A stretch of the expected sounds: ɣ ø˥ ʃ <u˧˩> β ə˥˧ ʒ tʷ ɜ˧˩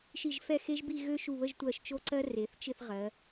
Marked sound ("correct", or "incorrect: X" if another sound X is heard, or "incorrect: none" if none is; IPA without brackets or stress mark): correct